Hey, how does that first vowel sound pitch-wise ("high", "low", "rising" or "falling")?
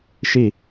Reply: falling